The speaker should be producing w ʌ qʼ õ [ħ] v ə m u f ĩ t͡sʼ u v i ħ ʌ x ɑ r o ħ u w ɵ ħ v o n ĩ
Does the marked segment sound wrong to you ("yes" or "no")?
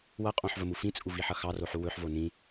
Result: no